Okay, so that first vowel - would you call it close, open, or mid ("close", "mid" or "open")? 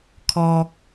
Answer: mid